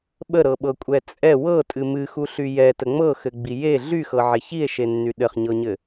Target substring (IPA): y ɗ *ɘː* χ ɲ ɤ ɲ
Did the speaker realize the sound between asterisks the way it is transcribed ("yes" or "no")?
no